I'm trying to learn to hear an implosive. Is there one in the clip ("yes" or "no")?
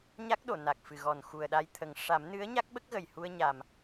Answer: yes